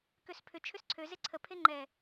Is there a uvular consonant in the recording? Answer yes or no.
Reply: no